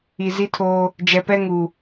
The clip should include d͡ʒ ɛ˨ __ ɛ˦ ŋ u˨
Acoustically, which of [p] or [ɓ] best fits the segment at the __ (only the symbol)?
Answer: p